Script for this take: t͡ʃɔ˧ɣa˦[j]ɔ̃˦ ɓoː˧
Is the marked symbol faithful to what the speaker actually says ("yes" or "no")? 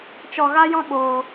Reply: yes